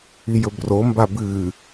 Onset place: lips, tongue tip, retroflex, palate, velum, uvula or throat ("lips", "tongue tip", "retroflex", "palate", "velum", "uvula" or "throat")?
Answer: palate